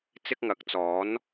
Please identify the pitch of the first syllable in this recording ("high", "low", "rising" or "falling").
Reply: high